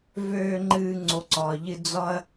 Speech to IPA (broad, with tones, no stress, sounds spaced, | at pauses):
v øː˨ ŋ͡ǃ ɨː˨ ŋ͡ǀ o˩ ǀ ɒː˩ ʎ ɨ˨ d͡z ɒ˦ ɐ̯